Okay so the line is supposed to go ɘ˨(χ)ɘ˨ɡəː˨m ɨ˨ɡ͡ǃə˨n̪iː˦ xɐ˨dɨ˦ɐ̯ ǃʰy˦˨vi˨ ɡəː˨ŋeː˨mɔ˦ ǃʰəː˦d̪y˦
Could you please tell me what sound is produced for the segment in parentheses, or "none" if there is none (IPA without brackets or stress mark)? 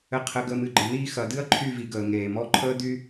qʰ